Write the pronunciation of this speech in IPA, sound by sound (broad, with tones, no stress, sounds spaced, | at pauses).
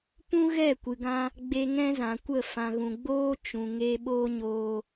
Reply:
p ũ˦ ɣ ɛ˦˨ kʷ ɨ˨ ɡ ã˧ | ɡ͡b e˧ ŋ ɛ̃˦ z ã˨ kʷ ə˦˨ f ã˨ ɣ ũ˨ ɡ͡b oː˦ t͡ʃ ũ˨ ŋ e˧ ɓ oː˦ ɲ oː˧